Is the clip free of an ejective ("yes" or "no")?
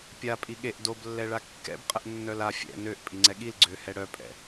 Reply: no